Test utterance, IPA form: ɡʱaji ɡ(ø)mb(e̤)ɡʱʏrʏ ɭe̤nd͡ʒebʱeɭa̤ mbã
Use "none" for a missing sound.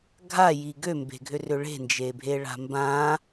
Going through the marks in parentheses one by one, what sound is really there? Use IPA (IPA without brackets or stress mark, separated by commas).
ø, e̤